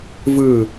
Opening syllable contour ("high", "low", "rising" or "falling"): falling